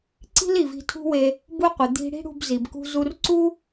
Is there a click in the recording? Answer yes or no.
yes